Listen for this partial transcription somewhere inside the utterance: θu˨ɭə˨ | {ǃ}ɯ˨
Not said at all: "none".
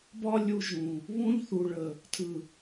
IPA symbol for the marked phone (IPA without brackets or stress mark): tʰ